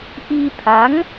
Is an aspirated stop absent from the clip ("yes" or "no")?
no